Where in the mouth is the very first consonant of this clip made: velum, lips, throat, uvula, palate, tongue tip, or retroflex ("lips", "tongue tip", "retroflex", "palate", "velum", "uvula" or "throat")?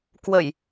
velum